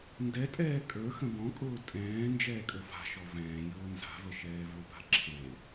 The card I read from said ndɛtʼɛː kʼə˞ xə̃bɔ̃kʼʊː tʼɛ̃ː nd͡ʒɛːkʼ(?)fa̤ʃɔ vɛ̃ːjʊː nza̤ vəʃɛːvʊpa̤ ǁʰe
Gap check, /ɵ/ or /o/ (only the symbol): ɵ